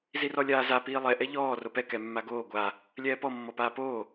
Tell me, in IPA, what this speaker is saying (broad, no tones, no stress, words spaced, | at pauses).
zirɔlʲaːza piːlˠɛ ʔɛʎɔː ropɛ kɛmːaɡoː ɡʷa | lʲɛːpɔ mːɔpaːpoː